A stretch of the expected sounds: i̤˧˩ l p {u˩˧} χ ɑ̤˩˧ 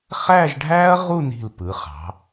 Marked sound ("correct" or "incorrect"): incorrect